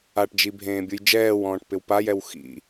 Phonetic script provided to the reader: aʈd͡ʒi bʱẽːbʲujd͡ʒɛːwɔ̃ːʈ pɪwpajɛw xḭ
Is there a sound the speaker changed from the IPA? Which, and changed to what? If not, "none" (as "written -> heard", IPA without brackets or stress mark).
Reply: none